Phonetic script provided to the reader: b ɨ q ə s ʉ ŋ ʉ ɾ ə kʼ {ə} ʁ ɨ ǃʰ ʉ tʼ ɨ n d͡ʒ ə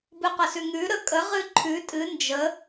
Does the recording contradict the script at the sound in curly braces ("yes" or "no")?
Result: no